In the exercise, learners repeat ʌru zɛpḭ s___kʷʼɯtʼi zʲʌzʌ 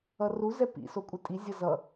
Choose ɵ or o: o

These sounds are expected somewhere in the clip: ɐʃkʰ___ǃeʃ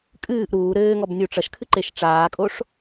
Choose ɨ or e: ɨ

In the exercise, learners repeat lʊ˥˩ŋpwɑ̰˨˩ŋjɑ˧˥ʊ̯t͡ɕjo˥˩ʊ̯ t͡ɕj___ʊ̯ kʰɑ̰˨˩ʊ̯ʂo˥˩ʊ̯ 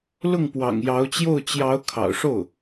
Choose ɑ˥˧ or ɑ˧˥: ɑ˧˥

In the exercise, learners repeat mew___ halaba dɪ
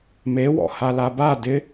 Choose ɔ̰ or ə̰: ɔ̰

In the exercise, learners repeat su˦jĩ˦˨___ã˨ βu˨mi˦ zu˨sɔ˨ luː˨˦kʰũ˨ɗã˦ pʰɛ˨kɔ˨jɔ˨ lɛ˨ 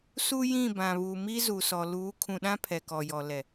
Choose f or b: b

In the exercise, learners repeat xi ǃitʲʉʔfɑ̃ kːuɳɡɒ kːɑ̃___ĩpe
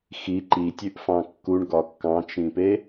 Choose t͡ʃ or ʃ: t͡ʃ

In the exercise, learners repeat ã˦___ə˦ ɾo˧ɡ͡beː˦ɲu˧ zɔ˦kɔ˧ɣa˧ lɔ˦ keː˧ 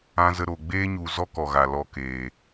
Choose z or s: z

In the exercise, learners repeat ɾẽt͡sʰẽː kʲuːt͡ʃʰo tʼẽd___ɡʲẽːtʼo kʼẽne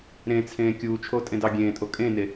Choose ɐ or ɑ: ɑ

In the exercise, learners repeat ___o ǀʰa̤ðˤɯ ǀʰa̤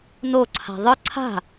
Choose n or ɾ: n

